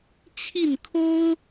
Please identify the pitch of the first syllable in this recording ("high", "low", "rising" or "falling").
falling